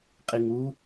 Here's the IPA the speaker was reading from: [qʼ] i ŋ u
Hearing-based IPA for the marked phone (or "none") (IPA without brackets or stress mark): qʼ